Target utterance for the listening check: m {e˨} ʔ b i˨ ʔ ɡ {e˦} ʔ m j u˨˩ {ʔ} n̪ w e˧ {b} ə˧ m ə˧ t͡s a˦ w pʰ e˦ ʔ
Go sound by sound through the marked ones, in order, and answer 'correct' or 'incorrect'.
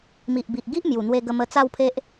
incorrect: i˨, incorrect: i˦, incorrect: none, incorrect: ɡ

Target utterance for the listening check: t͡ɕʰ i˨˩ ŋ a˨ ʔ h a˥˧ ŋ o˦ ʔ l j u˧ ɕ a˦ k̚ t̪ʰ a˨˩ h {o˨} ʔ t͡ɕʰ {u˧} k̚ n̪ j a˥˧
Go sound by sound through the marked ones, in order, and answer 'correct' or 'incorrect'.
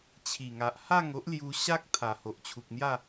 correct, incorrect: u˨

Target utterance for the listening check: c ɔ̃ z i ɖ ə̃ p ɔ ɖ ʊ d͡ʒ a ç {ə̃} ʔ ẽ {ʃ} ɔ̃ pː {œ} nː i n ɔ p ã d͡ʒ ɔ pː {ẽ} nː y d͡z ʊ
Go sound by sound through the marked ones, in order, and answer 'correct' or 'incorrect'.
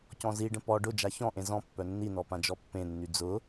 incorrect: ɔ̃, incorrect: z, correct, correct

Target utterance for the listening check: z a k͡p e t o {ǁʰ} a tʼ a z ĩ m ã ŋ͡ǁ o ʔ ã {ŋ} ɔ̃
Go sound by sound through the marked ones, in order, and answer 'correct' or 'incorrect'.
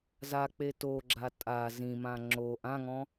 incorrect: ɡ͡ǁ, correct

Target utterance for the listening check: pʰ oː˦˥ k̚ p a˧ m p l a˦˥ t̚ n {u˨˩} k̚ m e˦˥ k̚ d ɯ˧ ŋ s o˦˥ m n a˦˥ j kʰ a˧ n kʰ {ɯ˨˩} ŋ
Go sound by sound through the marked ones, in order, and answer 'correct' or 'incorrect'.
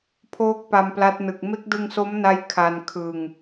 incorrect: ɯ˨˩, incorrect: ɯ˧

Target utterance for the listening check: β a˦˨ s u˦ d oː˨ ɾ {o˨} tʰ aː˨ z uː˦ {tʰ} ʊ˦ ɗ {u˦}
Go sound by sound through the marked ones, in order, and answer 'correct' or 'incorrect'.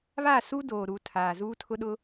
incorrect: u˨, correct, incorrect: ʊ˦

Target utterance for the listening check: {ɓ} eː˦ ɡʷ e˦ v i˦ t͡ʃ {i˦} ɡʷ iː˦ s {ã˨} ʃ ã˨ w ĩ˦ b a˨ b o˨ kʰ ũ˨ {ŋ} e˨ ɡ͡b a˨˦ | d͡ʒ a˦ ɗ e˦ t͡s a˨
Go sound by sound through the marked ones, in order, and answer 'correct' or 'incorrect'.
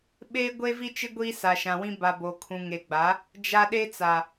correct, incorrect: ɪ˦, incorrect: a˨, correct

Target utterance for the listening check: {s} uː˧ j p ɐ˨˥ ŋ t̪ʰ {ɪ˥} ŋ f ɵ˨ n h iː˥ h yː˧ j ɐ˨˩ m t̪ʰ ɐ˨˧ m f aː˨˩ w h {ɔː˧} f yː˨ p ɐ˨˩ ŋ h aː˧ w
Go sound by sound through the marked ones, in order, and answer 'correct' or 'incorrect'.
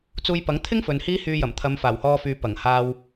incorrect: t͡s, correct, correct

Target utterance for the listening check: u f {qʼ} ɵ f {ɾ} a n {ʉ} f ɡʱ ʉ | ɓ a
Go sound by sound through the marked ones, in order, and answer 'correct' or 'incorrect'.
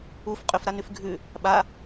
correct, correct, correct

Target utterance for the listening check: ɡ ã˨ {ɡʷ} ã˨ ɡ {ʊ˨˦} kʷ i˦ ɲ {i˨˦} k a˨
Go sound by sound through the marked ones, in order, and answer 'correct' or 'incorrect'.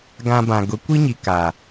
incorrect: b, correct, incorrect: i˨

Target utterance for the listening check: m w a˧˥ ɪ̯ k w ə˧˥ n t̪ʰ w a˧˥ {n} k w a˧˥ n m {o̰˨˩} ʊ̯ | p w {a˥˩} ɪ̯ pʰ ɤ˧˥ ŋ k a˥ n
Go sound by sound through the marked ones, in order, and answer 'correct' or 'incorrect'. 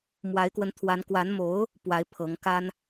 correct, incorrect: o˧˥, incorrect: a˧˥

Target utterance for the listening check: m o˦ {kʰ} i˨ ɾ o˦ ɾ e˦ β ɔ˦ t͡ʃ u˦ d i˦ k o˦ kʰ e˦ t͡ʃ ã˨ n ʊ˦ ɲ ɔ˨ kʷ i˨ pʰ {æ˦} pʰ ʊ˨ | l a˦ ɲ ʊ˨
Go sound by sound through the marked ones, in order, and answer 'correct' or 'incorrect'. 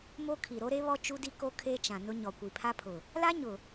correct, incorrect: a˦

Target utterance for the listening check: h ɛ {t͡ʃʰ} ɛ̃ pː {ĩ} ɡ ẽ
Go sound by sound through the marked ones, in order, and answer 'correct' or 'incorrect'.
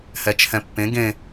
correct, incorrect: ẽ

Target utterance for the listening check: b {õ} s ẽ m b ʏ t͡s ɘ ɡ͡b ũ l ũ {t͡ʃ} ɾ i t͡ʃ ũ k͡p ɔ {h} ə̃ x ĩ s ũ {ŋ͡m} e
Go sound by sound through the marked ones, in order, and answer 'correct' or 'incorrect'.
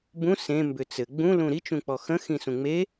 incorrect: ũ, incorrect: none, incorrect: x, correct

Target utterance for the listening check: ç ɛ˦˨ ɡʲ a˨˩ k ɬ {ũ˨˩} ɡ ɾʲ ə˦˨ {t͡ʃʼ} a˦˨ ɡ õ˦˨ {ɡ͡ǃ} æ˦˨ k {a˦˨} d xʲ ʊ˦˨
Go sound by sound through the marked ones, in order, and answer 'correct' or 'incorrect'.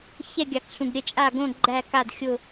correct, correct, correct, correct

